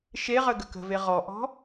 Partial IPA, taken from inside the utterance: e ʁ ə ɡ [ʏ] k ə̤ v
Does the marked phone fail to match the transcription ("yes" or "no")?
yes